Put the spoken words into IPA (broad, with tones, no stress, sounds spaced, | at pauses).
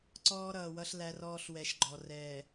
ǀ ɔː˦ ɾ ʌː˨ w ʌ˦ ɬ l æ˦ r ɔː˦ ɬ w ɛ˨˦ ʃ ɡ͡ǃ ɔ˨ r ɛː˨